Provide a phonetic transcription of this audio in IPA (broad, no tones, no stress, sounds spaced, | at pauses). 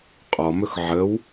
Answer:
qʼ ɔ m ɵ x ʕ ə w